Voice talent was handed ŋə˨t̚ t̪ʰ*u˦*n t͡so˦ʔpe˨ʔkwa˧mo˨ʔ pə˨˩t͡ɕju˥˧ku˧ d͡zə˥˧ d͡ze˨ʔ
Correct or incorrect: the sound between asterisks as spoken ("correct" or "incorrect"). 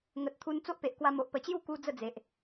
incorrect